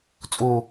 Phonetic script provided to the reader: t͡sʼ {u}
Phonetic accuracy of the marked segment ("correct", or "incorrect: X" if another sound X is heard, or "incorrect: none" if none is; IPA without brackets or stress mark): correct